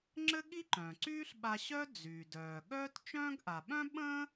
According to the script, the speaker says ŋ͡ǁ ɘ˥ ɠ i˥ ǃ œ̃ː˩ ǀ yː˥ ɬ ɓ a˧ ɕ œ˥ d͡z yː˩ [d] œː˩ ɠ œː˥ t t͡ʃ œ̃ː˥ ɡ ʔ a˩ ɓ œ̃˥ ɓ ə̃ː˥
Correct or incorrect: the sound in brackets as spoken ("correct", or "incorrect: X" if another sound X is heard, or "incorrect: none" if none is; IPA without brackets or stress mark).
correct